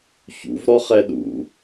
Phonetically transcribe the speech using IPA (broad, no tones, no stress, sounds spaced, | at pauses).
ç ṵ v ɾ ɔ χ ɛ ɗ ṵ